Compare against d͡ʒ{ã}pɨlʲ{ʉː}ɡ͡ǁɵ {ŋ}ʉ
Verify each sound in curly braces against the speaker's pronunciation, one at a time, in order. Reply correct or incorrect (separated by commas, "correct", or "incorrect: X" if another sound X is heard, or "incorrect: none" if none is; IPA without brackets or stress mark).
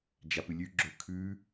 incorrect: a, incorrect: ʉ, incorrect: kʰ